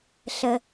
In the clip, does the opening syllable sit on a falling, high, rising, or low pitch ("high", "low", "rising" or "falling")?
low